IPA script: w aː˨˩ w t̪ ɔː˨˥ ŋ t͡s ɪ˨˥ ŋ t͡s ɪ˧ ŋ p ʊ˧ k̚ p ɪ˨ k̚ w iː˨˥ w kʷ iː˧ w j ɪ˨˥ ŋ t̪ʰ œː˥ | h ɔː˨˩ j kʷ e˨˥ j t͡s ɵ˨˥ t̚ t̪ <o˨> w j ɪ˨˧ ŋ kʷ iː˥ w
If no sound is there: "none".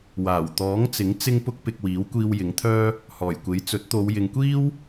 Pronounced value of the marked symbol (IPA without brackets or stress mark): o˨˧